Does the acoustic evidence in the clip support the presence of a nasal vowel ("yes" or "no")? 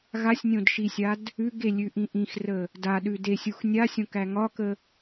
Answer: yes